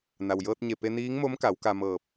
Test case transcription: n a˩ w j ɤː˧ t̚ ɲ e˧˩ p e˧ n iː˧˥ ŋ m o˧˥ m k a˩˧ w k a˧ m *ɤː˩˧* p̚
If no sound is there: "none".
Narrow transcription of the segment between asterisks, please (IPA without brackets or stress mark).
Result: ɤː˧˩